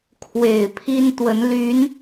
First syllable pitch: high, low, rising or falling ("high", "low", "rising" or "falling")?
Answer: low